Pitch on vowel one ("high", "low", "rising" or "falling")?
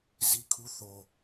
high